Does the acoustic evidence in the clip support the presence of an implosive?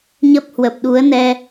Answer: yes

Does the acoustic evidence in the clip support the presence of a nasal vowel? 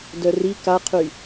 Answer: no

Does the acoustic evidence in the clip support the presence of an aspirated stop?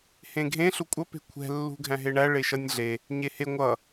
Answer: yes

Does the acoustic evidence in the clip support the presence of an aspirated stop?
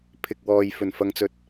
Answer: yes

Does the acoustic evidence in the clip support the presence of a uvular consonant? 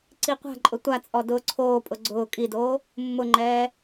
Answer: yes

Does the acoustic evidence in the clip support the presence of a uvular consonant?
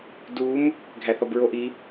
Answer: no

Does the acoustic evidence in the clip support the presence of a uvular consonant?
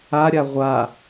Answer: yes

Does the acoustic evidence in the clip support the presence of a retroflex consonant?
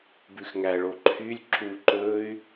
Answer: yes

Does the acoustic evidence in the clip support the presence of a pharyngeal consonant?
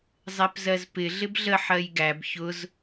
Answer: yes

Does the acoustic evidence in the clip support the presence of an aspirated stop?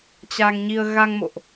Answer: no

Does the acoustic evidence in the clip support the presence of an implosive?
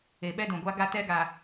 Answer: yes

